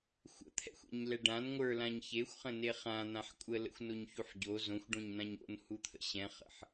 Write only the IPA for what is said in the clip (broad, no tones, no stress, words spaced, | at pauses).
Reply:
xʷə̰t̪ʰɛ̰xʷɛ̰ɲlɛ ɖãn ŋʷə˞lãɲ çexʷχə̃ne χãn̪ãħ kʷʼələ̰xʷnoɲçuħ ɟo zõxʷɖõɲn̪ãɲ o̰nhut̪ʰə̰ ɕɛ̃χə̰ħ